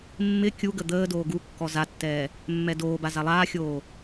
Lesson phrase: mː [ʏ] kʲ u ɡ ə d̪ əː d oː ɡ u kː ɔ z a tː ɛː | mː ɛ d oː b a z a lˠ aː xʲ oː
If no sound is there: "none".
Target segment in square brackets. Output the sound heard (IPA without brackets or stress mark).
ɪ